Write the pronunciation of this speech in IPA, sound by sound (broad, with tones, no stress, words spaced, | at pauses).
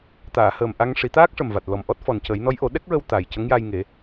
t̪aː˨˩˨həː˨˩m ʔa˧ŋʂi˨˩˦ t̪aː˦˥k̚ʂə˨˩mva˨˩t̚ lɔ˨˩mʔɔ˦˥t̚ fɔ˨˩ncə˨˩˦jnɔ˧˥j ʔo˨˩˦ɗɛ˦˥k̚ɹə˧w t̪a˨˩j cə˧˥ŋja˧j ŋe˨˩˦